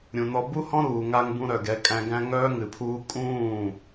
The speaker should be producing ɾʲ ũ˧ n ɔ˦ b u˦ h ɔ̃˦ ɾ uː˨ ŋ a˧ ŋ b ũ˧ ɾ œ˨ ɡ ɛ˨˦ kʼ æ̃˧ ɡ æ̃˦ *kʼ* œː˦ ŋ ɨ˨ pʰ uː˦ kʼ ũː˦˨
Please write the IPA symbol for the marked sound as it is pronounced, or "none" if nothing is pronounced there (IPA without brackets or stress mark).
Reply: ŋ